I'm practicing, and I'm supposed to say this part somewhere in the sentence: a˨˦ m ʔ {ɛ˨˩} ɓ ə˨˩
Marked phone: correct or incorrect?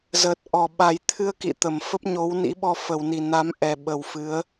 correct